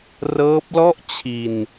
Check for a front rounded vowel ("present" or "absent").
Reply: absent